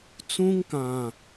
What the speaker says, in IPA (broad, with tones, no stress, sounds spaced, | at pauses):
t͡s ũ˦ ŋ k ã˨